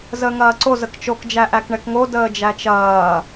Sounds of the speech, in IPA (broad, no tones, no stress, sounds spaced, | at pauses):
z əː ŋ ɐː ǀ o z ə k t͡ʃ o k d͡ʒ æ ʔ æ k ɳ ɛ k ŋ o d əː d͡ʒ æ t͡ʃ ɐː